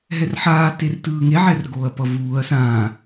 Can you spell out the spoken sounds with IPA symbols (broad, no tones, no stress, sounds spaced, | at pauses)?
ɦ ɛ r ħ aː t e r t ɯː ŋ e ʕ ɛ r ɡ oː ɐ̯ p ʌ v uː ɐ̯ s ãː